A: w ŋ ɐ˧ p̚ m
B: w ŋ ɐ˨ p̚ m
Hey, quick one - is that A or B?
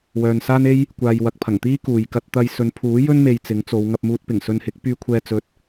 A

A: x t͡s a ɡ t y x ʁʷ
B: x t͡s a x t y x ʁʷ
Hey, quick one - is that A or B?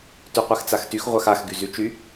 B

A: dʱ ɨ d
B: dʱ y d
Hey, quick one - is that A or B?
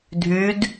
B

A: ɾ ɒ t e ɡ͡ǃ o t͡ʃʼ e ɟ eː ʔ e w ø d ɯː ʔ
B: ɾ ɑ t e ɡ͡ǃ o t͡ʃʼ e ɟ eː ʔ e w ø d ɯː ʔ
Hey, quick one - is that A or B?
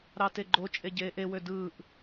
B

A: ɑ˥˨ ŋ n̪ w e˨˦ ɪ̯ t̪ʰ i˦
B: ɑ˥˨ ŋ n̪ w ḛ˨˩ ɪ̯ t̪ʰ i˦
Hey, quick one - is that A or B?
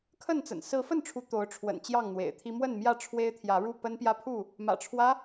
B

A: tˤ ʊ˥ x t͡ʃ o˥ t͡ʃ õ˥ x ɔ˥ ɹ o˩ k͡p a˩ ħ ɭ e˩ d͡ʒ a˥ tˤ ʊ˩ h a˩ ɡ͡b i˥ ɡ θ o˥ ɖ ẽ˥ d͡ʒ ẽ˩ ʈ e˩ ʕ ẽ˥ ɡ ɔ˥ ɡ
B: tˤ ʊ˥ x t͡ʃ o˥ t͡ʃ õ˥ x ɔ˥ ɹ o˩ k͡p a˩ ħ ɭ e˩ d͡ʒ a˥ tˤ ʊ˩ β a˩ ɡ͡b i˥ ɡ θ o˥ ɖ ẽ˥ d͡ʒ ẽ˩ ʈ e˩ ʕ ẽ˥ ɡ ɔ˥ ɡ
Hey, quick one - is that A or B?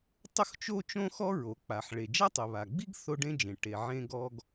B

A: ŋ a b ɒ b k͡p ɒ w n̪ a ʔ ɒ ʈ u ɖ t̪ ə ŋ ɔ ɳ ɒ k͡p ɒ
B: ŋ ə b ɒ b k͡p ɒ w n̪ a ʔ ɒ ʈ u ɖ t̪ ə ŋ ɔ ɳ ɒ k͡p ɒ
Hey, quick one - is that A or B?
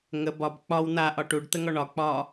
B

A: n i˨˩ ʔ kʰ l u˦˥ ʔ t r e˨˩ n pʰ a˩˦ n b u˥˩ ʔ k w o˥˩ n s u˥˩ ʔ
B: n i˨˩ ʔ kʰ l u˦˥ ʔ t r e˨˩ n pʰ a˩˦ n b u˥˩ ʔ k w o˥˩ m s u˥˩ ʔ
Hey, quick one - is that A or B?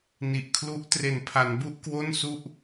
A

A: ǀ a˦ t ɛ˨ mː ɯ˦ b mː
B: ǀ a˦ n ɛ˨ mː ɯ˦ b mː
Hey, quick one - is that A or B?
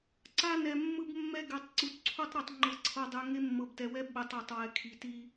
B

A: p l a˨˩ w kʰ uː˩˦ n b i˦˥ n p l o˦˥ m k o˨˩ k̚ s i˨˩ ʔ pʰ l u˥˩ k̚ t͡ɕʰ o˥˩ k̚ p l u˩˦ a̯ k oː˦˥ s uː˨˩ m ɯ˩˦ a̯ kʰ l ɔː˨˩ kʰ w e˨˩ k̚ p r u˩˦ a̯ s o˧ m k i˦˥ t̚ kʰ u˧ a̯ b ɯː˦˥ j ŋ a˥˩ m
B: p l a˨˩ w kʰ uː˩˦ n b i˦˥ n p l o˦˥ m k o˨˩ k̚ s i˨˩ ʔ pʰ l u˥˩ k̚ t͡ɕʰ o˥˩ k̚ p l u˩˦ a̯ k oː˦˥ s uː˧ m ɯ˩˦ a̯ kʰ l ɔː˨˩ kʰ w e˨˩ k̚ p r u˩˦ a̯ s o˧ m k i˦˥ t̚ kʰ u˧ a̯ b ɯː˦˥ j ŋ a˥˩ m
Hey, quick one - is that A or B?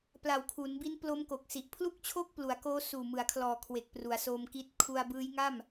A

